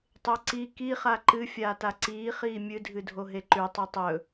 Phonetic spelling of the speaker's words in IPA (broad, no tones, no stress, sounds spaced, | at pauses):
tˤ e ǀ i k i χ a ǃ ɨ fʲ aː t a ǀ iː χ iː mʲ ɨ dʱ ɨ dʱ o ɦ e ǃ ʉ tˤ ɵ tˤ ɵ